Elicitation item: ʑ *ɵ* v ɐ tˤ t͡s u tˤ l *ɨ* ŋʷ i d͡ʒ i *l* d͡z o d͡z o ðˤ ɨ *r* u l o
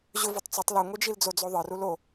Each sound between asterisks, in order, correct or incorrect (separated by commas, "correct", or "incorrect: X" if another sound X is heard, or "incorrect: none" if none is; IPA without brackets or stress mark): correct, correct, correct, correct